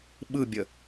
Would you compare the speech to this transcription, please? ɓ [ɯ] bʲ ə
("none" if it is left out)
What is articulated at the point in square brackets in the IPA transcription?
ɯ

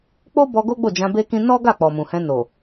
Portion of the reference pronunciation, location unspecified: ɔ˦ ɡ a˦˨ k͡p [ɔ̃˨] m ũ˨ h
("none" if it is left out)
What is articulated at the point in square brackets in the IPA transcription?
ɔ˨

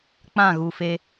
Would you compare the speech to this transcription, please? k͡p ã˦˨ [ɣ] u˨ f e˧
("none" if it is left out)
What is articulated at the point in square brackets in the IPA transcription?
ɣ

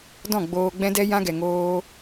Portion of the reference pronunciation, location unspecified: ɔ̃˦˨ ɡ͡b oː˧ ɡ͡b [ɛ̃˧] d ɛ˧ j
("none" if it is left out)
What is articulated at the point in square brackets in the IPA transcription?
ɛ̃˧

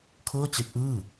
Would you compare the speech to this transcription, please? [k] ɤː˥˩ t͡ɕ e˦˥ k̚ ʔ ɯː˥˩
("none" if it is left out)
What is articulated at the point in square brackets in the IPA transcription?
kʰ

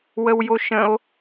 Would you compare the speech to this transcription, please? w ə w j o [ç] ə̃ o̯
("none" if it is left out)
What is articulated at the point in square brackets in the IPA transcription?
ʃ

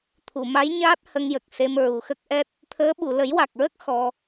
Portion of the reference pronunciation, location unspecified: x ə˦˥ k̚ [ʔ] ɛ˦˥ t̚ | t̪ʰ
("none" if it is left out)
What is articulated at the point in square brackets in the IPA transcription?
ʔ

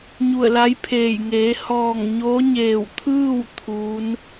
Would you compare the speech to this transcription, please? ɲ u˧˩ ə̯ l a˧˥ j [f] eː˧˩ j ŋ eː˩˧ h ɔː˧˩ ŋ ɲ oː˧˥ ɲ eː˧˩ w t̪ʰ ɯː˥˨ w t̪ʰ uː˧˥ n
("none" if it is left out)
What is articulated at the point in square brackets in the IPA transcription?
pʰ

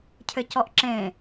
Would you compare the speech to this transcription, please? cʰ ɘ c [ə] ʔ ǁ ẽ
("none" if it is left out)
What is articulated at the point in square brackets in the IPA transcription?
ɔ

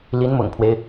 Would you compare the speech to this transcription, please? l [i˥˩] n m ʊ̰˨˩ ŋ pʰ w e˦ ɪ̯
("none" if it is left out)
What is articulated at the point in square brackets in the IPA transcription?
i˧˥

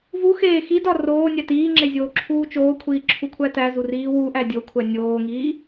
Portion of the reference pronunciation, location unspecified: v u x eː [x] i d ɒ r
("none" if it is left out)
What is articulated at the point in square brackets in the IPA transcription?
x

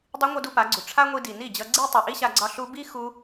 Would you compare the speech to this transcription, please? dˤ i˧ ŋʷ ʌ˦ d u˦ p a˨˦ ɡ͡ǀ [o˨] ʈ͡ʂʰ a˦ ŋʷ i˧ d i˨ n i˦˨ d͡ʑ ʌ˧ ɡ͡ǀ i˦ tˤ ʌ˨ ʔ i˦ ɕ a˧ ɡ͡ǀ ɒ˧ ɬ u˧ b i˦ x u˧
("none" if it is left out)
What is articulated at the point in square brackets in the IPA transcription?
u˨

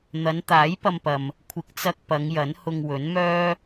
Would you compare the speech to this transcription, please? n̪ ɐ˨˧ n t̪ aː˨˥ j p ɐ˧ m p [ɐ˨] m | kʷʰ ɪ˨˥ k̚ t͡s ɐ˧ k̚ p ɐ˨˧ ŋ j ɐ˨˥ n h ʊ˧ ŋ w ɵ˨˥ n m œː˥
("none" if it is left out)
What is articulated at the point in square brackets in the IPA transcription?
ɐ˨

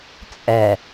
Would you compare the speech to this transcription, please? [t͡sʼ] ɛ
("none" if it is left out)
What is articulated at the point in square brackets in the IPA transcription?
t͡sʼ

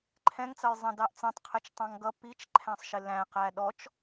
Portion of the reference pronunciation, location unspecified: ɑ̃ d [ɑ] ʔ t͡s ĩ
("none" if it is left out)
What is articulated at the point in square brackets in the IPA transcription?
ɑ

